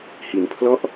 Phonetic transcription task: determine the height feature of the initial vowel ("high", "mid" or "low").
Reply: high